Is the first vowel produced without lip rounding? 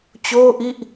no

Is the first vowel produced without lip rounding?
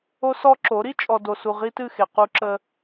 no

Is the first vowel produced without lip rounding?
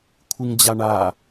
yes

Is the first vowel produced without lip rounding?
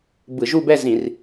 yes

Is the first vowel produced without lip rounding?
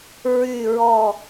no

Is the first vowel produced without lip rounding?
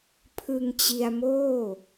yes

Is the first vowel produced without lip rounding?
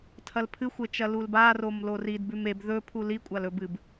yes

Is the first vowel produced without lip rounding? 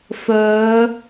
no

